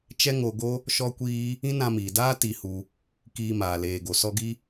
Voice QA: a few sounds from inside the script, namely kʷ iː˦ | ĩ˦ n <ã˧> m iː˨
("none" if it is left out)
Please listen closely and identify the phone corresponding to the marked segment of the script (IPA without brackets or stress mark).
ã˧